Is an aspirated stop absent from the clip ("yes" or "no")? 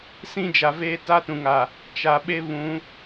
yes